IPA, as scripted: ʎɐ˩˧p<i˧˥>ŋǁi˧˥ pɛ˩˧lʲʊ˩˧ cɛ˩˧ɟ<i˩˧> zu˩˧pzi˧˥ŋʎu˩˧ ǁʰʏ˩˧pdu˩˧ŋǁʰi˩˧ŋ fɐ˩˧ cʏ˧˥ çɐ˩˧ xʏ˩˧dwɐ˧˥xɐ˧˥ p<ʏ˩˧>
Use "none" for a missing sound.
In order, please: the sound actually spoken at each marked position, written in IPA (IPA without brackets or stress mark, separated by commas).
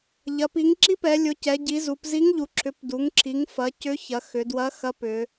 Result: i˩˧, i˩˧, ʏ˩˧